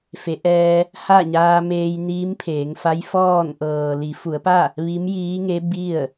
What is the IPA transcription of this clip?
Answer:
fe˩˧ʔɛː˧ | ha˥˨ɲaː˧meː˧j niː˧˥mpʰeː˩˧ŋfa˧˥jfɔː˥˨n ʔɤː˩ li˩˧fu˩˧ə̯pa˥˨ | ʋi˧˥mjiː˧˥ŋe˧˥ bi˥˨ə̯

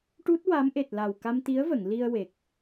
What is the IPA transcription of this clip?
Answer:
ʈu˦˥t̚wa˧˥mʔe˨˩t̚ la˨˩wka˧mt̪i˧˥ə̯və˨˩˨ŋ li˧ə̯we˨˩k̚

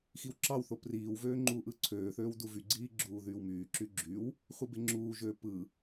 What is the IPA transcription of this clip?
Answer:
xiwǁɑwθo priːwvøː ŋ͡ǃuːʔɯǀʰøːθøːw duvyɡ͡ǀiː ɡ͡ǁuːðyːwmyːǁy ɡ͡ǁyw | χʷɯbeŋ͡ǁuːʒøː pɯ

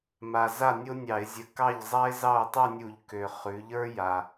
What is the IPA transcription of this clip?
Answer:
ma˨˩za˥˨ nʲo˥nʲɑ˧˩˧ɪ̯zʲə˧˩˧ kɑ˥˨ʎzˤa˥ɪ̯ zɑ˥˨ʊ̯tˤʉ˥˨nʲu˧˩˧ʎ kø˨˩ χʉ˩˧ʎə˞˥ja˨˩

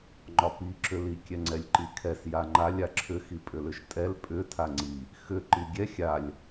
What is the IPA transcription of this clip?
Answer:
ŋ͡ǃɒpi ǁʏli kʲɛŋ͡ǀɛlʲǃikʰɛs jaŋ͡ǃalʲ aǁʰʏ xipʼʏlʏʃtʼɛl pʼʏ tʰaŋ͡ǀi | xʏ ǃiɡʲɛ xʲalʲ

